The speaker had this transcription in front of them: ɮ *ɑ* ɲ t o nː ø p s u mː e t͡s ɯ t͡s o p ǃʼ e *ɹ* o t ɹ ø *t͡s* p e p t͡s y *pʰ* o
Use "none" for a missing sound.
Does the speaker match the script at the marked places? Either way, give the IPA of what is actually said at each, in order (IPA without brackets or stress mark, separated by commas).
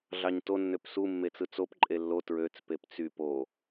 ɑ, lː, t͡s, p